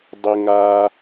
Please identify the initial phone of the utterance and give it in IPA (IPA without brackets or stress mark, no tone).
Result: dˤ